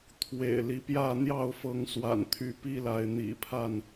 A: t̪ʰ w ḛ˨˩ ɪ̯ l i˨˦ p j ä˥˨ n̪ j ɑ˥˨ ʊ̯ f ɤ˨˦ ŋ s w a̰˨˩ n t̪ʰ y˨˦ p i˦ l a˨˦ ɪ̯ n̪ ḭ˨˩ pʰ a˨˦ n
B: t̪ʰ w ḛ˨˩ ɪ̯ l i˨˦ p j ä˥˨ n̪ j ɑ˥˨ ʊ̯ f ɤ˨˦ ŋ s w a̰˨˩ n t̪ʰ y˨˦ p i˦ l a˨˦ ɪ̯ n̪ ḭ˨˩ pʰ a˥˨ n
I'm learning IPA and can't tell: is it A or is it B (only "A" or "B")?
B